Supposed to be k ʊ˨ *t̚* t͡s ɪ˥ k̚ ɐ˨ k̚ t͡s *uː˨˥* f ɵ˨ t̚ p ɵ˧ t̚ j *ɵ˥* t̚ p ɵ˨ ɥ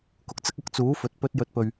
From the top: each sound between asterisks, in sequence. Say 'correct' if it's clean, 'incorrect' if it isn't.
incorrect: k̚, correct, incorrect: ɵ˨

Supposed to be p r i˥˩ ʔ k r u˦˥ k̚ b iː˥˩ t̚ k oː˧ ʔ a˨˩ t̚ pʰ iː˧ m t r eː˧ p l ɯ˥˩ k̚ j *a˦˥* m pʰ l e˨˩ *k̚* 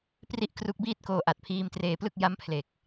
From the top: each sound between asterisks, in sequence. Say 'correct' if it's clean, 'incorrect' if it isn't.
correct, correct

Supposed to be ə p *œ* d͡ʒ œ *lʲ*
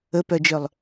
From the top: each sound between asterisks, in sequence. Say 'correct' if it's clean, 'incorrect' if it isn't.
correct, incorrect: lˠ

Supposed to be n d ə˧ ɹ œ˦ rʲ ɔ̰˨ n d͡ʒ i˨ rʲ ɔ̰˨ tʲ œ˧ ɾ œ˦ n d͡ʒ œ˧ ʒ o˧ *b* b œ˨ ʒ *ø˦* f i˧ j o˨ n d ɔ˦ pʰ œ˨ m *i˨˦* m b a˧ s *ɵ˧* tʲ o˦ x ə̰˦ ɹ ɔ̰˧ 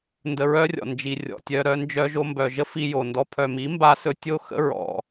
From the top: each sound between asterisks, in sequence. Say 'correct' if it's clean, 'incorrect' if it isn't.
incorrect: m, incorrect: ə˦, correct, correct

